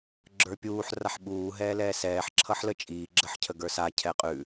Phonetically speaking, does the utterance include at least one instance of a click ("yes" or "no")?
yes